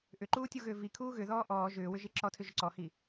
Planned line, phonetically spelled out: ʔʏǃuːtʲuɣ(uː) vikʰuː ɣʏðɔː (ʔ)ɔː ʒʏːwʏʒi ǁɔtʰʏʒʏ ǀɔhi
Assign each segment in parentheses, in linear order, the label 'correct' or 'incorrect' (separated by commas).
incorrect, correct